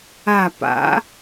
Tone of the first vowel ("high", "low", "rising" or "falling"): falling